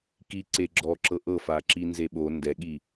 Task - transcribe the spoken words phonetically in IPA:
kiǀe ɡ͡ǁɔǁɤ ʔɤfaǁinze ɓo ndɛɠi

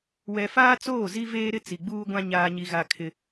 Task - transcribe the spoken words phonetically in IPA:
wɛ˨faː˦ t͡soː˦˨zi˦veː˦ ɾɪ˦ t͡si˨ɡ͡buː˦ɡʷã˦ ɲaː˦ɲi˦ɣa˦ kʰɪ˦

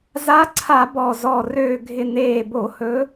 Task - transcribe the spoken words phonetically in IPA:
za˧˥ǀʰa˧˩˧ bɔ˨˩zɔ˨˩ røː˨˩ɡʱɪ˨˩ neː˨˩bo˧˩˧ hɵ˧˥

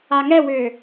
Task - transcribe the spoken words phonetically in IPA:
aŋɛwʏː

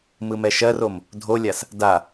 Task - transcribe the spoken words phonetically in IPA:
mɯmɛʃɜrom | dʱolʲas | da

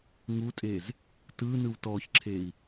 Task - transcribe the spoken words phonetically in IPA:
ŋutʼez | tɯnɯw tɔçǁʰei̯

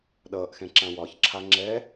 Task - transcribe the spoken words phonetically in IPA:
ɗʌːʔxɛ̃ ǁãwɒçǁʰa ŋ͡ǁɛ

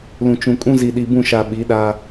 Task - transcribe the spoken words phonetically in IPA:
lũ˨t͡ʃũ˨kʼũ˦ zi˨ɗi˨bũ˦˨ʃa˨ ɓi˨˦ɗa˦

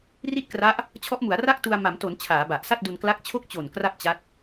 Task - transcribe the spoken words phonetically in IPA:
ri˥˩t̚kra˦˥ʔ | t͡ɕʰɔ˦˥ʔmu˩˦a̯ra˥˩k̚ tu˧a̯ma˩˦mto˩˦n t͡ɕʰaː˩˦ba˨˩ʔsa˥˩t̚du˧n kla˦˥k̚t͡ɕʰo˥˩k̚t͡ɕo˨˩n kra˥˩p̚t͡ɕa˦˥t̚

